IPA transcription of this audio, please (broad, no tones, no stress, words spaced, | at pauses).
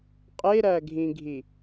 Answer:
qʼeɾæɡʱĩɡʱi